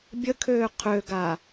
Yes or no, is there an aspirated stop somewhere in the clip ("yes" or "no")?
yes